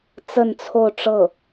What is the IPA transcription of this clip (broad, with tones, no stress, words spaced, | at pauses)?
t͡sə˥˧nt͡sʰo˥˧ʊ̯ ʈ͡ʂɤ˥˩